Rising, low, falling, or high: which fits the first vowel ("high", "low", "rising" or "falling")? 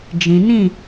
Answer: low